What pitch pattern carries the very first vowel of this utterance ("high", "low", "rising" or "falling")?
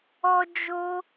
high